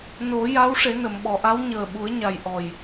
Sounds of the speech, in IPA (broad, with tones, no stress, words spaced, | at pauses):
no˨˩˦ja˧˥w ʂe˨˩˦nə˨˩˨mɓɔ˨˩˨ʔa˧˥w ɲəː˨˩ɓu˨˩˦ə̯ɲa˨˩j ʔɔ˨˩j